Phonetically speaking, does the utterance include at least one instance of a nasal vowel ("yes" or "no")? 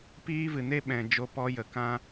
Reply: yes